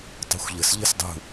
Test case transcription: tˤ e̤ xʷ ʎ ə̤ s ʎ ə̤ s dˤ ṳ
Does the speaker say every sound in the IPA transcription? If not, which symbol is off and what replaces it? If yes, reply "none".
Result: none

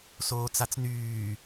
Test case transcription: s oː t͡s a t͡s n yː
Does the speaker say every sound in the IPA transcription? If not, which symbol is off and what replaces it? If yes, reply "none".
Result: none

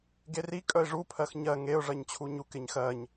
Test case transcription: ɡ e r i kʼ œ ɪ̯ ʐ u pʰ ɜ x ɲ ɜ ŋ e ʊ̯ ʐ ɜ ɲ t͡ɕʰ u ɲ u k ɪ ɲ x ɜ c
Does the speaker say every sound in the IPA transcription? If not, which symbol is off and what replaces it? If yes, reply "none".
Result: c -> ɲ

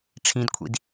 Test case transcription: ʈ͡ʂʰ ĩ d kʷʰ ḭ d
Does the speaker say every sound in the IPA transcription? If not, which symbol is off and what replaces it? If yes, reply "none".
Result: none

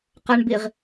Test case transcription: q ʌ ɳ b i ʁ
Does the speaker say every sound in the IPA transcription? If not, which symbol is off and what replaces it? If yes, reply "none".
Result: none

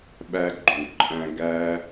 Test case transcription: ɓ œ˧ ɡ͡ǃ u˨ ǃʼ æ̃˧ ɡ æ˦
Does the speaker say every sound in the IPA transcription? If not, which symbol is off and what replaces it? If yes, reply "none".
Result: œ˧ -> æ˧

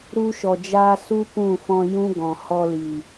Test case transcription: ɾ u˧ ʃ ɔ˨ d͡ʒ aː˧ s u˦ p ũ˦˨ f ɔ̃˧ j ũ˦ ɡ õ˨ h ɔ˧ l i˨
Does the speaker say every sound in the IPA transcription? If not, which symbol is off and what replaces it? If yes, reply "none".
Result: õ˨ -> ɔ̃˨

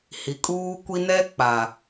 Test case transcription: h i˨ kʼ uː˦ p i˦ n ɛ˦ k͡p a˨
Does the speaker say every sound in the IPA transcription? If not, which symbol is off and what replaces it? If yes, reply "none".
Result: p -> kʷ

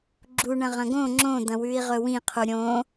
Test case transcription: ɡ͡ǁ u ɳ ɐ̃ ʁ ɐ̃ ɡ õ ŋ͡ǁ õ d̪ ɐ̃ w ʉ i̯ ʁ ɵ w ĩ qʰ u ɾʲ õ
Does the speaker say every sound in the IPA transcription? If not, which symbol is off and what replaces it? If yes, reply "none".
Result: none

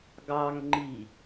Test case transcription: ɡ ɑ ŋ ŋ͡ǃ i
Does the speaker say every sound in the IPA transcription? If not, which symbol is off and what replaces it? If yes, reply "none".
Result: none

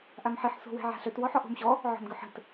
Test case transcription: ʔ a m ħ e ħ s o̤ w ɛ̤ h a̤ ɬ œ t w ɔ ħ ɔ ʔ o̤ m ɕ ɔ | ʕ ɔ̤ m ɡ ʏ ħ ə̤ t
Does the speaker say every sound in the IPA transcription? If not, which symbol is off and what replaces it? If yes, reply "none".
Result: h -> ʕ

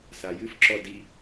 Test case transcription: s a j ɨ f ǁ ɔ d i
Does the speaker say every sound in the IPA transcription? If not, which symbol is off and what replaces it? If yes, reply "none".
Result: none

